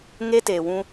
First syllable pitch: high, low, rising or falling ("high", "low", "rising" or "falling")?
high